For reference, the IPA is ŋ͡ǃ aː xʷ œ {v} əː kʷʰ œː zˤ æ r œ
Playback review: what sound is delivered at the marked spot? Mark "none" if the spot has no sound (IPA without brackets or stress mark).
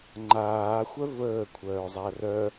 v